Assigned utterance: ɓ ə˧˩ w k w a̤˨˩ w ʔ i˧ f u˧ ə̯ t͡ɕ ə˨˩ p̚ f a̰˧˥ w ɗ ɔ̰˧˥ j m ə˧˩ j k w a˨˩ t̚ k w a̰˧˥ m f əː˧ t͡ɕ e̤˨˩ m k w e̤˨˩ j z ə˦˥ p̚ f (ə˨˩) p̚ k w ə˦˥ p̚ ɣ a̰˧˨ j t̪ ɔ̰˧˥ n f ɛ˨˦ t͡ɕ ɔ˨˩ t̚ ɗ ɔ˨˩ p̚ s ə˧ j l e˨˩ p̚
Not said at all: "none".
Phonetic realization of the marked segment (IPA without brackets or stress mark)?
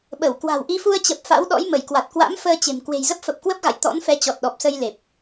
ə˨˩